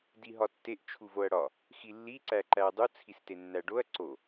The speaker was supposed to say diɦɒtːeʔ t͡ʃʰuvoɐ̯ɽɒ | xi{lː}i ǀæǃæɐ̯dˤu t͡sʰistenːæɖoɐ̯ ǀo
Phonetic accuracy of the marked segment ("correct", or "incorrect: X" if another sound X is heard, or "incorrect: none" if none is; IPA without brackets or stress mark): correct